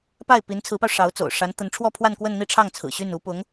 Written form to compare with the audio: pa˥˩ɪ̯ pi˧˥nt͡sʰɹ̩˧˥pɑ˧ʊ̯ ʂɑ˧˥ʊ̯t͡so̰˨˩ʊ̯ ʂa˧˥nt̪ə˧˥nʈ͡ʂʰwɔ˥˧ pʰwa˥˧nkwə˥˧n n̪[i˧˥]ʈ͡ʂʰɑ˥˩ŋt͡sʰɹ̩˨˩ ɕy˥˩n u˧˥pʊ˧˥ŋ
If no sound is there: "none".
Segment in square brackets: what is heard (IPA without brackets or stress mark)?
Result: i˥˧